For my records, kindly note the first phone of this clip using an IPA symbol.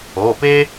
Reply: oː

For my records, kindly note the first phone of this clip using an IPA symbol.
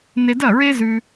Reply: n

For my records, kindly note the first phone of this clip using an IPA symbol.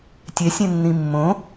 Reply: tʲ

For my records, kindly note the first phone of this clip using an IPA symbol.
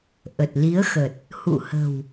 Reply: ʔ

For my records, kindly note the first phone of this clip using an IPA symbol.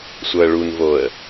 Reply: sʷ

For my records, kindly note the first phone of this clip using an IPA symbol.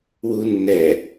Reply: w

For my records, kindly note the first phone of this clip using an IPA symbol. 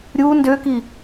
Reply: ɾʲ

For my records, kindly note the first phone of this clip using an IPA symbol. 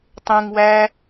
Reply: tˤ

